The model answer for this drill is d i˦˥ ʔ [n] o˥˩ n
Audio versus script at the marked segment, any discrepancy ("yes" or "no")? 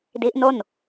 no